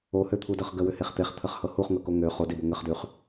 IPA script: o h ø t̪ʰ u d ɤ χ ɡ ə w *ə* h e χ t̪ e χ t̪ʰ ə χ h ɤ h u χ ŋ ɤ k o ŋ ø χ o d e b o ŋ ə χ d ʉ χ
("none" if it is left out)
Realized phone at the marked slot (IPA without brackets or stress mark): ʏ